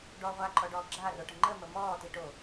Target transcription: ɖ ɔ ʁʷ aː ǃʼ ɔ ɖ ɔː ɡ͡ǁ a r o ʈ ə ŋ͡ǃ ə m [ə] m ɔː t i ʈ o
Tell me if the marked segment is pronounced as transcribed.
yes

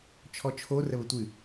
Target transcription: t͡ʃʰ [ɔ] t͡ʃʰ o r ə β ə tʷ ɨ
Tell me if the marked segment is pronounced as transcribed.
yes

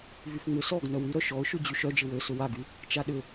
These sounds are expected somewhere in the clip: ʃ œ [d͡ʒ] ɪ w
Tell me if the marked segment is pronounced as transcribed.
yes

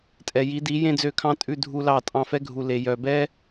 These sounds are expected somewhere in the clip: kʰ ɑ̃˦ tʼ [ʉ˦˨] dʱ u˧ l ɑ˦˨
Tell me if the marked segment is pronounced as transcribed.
yes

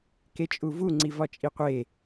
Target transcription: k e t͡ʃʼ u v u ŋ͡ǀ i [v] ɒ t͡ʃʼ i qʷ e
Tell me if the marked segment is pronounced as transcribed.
yes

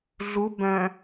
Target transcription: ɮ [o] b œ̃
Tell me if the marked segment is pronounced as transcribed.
no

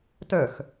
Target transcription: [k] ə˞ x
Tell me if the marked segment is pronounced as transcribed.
no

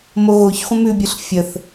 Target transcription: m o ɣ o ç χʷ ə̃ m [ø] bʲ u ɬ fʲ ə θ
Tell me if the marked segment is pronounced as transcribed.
no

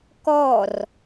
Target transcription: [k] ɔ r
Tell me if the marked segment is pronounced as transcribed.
yes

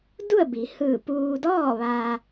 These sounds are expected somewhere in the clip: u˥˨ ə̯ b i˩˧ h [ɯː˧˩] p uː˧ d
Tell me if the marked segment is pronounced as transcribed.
yes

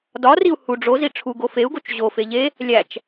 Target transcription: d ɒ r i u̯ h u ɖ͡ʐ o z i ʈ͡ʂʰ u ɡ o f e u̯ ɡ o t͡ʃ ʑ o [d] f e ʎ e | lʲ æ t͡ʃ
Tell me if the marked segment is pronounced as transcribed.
no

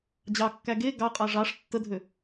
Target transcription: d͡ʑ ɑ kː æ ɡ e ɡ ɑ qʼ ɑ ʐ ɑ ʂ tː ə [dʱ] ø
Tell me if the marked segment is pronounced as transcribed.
yes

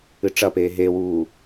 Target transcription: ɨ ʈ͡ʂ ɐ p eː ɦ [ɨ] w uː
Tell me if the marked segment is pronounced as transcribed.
no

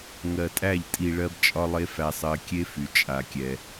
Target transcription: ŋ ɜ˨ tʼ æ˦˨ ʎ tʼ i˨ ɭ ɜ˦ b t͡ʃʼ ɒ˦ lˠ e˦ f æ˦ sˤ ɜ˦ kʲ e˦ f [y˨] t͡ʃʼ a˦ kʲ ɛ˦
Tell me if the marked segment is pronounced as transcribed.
yes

